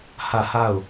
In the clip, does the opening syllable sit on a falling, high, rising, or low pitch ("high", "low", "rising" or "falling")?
falling